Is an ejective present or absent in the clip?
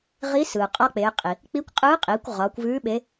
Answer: present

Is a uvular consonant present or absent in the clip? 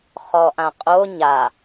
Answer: present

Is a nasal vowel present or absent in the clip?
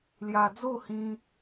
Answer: present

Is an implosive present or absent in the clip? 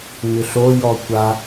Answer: absent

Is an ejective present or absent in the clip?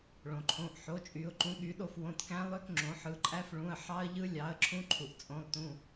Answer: present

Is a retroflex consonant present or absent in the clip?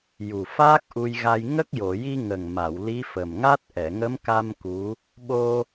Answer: absent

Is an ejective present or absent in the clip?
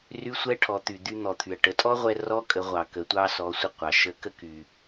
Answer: present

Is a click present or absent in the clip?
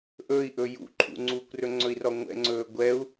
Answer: present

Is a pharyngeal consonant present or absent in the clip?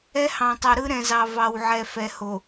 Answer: present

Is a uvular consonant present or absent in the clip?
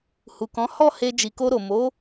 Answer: absent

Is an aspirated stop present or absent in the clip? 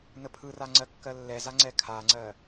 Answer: present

